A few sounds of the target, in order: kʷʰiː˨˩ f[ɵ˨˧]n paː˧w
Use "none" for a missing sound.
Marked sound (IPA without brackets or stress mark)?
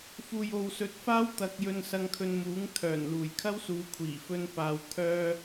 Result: ɵ˥